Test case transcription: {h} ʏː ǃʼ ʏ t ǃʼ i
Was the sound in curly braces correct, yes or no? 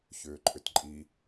no